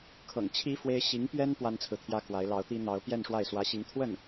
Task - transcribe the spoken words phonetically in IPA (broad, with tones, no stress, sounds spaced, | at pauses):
kʰ ɤ̰˨˩ ŋ t͡ɕʰ i˥ f w e˥ ɪ̯ ɕ i˧˥ ŋ p ɥ ɛ˥ n p w a˥ n t͡sʰ ɹ̩˨ t̪ʰ j ä˥ k w a˧˥ ɪ̯ l ɑ˧˥ ʊ̯ t̪ i˥ n̪ ɑ˧˥ ʊ̯ p j ɛ˥˧ n ʂ w a˥˩ ɪ̯ s w ä˧˥ ɕ i˧˥ ŋ t̪ʰ w ə˥˩ n